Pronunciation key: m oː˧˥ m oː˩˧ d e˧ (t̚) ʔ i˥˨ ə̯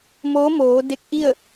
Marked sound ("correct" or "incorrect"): incorrect